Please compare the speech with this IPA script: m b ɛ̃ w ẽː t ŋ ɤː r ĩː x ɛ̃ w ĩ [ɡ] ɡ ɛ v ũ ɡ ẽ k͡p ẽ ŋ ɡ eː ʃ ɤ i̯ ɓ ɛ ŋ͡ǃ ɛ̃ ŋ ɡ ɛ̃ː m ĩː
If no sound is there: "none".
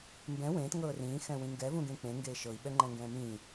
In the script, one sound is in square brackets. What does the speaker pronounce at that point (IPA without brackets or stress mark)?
ŋ